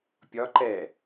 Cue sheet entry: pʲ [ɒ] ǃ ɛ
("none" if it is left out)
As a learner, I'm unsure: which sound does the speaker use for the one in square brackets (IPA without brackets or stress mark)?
ɒ